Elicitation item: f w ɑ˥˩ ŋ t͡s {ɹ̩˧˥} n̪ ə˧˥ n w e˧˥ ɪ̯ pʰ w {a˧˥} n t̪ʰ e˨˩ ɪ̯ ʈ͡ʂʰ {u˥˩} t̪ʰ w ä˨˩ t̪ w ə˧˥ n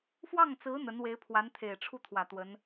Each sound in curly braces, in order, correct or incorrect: correct, correct, correct

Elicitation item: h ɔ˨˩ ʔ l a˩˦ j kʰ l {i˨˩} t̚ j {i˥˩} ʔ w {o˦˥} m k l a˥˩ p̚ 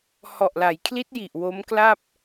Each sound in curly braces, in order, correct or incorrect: incorrect, incorrect, correct

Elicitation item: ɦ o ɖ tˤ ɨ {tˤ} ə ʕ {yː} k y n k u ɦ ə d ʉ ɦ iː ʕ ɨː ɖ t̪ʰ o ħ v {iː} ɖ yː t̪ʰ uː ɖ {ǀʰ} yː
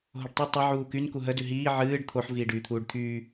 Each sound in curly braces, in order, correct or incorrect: correct, incorrect, correct, incorrect

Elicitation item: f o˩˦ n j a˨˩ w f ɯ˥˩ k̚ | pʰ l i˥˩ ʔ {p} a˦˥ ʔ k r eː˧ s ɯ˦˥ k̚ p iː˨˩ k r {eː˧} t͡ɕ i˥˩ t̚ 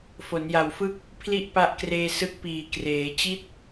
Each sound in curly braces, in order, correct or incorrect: correct, incorrect

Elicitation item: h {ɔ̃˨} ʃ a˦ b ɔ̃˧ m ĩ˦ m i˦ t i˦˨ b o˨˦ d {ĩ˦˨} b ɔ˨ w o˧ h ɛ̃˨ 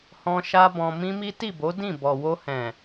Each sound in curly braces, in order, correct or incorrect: incorrect, correct

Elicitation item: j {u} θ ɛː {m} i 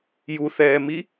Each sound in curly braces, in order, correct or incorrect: correct, correct

